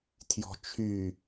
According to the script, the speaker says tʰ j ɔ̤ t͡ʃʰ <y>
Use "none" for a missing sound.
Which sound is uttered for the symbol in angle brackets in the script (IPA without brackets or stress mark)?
y